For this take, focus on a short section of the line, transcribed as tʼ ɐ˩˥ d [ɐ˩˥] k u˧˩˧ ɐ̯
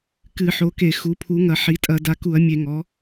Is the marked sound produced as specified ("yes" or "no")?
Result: no